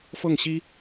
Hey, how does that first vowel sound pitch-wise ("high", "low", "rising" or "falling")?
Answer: falling